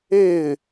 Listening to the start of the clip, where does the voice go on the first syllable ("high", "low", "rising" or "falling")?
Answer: falling